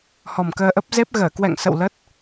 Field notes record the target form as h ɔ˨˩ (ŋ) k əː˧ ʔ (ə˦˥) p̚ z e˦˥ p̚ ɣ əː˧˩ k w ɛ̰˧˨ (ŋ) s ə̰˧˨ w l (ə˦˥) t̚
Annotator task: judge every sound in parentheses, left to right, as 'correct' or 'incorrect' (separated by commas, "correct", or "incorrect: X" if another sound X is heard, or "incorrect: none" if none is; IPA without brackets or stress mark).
incorrect: m, correct, correct, correct